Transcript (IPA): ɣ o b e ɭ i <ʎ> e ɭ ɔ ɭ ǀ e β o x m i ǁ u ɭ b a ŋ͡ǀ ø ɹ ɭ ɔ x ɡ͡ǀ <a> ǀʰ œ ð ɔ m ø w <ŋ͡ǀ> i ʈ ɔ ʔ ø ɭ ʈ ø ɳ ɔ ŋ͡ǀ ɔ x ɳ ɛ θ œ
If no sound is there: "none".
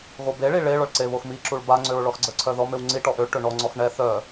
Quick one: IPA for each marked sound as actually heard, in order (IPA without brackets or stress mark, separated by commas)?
ɭ, ə, ŋ͡ǀ